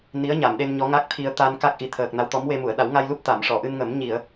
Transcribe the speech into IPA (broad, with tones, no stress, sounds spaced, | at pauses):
n i˧˥ ə̯ ɲ a˨˩˨ m ɗ e˧ n ɲ ɔ˧˥ ŋ a˦˥ k̚ t̪ʰ i˧ ə̯ t̪ a˧ n k a˦˥ k̚ ʔ i˨˩ t̪ʰ əː˨˩ k̚ n a˧˥ w t̪ ɔ˧˥ m w e˧ m u˨˩˨ ə̯ ɗ a˨˩˦ w ŋ a˧ j l u˦˥ p̚ t̪ a˨˩˨ m ʂ ɔ˨˩˨ ʔ ɨ˧ n ŋ ə˨˩˦ m ɲ i˨˩˨ ə̯